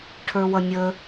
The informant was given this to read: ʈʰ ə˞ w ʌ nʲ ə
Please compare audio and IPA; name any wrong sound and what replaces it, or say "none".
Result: none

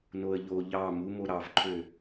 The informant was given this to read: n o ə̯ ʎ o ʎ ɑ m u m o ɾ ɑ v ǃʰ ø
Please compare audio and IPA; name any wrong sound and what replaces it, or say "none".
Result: none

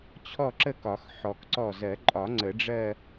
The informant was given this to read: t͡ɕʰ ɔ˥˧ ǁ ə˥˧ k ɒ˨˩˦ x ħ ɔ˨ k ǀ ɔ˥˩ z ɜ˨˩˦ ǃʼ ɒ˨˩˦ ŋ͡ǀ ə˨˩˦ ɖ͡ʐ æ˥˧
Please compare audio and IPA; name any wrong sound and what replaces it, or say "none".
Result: æ˥˧ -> ɜ˥˧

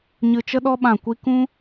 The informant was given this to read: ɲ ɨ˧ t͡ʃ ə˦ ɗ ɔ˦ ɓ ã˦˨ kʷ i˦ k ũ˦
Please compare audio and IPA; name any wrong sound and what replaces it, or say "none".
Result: none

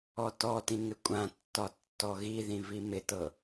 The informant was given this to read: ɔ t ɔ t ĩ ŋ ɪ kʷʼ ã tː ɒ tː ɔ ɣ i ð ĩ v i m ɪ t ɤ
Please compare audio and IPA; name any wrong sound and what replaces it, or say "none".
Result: none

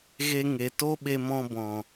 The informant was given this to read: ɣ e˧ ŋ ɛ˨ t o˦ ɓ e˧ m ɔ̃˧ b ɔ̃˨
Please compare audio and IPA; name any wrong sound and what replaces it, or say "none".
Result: ɛ˨ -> e˨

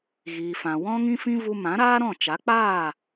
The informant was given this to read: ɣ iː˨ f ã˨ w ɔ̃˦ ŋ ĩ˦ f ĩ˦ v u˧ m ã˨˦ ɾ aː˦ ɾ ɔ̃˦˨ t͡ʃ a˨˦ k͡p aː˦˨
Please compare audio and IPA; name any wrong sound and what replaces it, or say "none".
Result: none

